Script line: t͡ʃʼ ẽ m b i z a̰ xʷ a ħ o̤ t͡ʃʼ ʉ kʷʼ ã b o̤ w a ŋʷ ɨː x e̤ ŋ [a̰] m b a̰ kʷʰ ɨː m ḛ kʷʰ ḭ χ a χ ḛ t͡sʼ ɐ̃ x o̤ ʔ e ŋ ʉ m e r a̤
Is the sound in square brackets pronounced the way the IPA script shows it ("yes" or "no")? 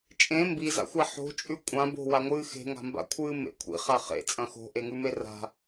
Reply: no